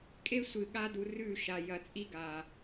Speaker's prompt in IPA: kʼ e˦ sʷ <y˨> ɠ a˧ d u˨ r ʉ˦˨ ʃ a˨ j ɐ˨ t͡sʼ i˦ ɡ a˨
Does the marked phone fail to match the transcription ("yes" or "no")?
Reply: yes